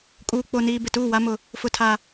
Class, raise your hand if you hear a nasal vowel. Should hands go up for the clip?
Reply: no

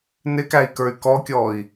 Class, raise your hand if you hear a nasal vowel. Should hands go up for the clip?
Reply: no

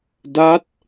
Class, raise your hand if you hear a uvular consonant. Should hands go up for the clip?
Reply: no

